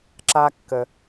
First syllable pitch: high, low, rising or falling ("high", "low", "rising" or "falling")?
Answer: high